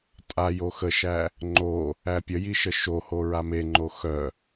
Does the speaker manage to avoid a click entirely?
no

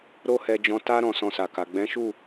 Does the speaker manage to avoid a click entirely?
yes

